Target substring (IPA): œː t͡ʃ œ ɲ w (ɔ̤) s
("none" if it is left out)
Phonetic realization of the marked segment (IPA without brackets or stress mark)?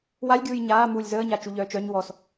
ɔ